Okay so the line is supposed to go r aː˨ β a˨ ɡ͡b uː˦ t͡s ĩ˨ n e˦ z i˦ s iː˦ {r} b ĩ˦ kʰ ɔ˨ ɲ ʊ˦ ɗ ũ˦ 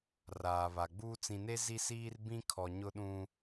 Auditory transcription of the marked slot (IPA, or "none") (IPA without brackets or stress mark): r